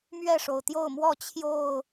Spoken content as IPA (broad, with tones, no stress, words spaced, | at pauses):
mɥɛ˥˨ʂo˩ʊ̯t̪jo˥˨ʊ̯mwɔ˥˨ t͡ɕʰjo˥˨ʊ̯